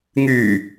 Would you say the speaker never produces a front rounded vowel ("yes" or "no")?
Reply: no